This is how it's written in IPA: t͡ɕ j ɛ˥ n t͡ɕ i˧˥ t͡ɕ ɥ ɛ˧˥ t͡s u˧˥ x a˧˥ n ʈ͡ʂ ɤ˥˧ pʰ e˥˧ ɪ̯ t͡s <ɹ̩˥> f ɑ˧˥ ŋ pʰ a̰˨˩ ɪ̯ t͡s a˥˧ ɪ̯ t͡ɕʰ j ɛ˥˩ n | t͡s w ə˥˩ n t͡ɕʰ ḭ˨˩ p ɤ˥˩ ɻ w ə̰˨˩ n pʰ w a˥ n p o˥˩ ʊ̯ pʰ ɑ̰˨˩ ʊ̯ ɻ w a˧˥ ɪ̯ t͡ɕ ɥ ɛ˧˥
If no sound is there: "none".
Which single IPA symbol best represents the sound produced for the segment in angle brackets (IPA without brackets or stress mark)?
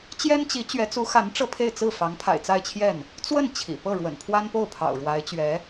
ɹ̩˥˩